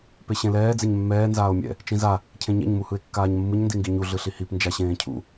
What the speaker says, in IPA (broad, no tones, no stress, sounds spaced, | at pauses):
p e ɕ ẽ l ɛː d͡z e ɲ mː ɛː n z aː o̯ mʲ ɛ̰ | t͡ʃ ĩ z a | cʰ ẽ ɲ ɛ̰ ɲ m u h ɯ e̯ kː aː ɲ mː ɯ ɲ n d i ŋ ɡ i ɲ u ɮ ɯ ɬ i h i p n d͡ʒ a ɕ ẽː cʰ ṵ